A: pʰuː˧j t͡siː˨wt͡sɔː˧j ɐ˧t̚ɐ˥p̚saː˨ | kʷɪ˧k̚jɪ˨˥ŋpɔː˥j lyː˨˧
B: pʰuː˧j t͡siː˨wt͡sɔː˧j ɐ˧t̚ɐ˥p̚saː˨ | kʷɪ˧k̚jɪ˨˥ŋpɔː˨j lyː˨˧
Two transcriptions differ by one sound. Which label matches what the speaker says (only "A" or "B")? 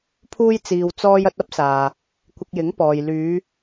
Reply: B